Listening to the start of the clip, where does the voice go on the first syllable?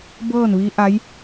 falling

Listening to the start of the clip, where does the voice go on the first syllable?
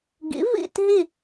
rising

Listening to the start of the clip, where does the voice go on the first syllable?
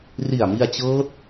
low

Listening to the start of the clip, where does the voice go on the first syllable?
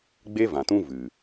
high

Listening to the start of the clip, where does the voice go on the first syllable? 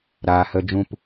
low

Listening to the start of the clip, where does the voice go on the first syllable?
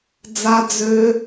high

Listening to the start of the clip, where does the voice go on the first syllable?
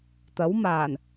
rising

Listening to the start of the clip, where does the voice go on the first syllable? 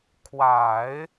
low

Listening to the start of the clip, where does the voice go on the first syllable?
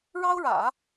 high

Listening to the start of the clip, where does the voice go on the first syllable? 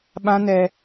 high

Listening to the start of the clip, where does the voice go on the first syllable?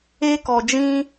high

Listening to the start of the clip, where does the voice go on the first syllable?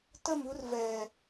falling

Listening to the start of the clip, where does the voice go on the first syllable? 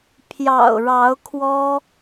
low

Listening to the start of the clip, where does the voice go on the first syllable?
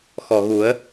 low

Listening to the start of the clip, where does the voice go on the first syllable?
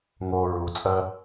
low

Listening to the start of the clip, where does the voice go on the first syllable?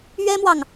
high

